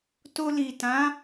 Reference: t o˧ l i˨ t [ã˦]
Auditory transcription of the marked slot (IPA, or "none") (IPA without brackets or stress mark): ã˨˦